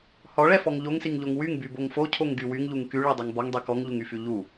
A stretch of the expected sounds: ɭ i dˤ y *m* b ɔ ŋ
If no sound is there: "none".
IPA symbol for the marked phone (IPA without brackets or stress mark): ŋ